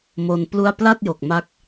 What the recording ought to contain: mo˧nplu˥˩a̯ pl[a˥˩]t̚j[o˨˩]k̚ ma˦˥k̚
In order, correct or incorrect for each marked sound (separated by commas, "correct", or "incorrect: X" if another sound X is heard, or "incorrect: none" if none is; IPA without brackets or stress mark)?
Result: correct, correct